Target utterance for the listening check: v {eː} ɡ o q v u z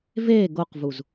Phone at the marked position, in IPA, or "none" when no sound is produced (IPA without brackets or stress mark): eː